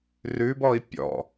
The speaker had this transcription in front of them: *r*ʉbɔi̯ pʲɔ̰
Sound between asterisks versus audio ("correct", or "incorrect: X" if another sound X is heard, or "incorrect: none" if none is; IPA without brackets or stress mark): correct